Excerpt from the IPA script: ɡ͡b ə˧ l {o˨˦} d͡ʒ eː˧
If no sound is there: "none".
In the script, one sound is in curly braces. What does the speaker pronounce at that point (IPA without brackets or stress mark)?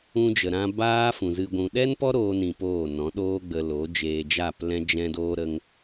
o˨˦